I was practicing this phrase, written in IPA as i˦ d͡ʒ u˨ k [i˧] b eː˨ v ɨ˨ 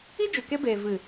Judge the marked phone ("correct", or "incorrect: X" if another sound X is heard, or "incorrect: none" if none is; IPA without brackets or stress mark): incorrect: e˧